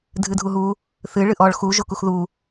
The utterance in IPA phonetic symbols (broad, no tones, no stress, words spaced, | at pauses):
dʱɨdʱuɦu | θɨ ɭɨʔɔɭ xu ʒokuxðu